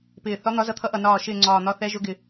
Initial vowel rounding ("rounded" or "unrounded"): unrounded